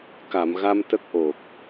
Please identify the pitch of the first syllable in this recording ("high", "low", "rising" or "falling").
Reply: low